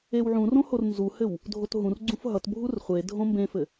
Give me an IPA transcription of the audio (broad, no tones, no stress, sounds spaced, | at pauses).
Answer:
e w ʕ ũ r õ h o r n z u h ɘ w | dʱ o t ɦ ũ r ɡ͡ǀ ũ f ɦ ʌ t bʱ u r χʷ e dʱ õ m b ẽ f ɘ